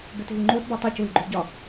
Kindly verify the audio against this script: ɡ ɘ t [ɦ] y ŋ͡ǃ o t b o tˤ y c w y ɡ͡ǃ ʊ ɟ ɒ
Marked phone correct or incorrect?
correct